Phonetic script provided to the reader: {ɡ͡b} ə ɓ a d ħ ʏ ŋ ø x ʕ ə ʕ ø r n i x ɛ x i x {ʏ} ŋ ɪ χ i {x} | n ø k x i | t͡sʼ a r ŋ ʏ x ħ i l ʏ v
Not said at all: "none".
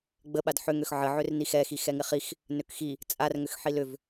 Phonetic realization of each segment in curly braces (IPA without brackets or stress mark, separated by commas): ɡ͡b, ɛ, x